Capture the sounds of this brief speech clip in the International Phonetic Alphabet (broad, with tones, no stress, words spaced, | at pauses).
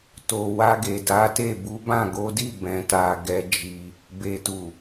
to˨wa˧ɡe˨ da˨˦te˦˨ bu˨˦bã˦˨ɡo˨˦di˦˨ bɛ̃˨ta˨ ɡɛ˧ d͡ʒi˧ | be˨tu˨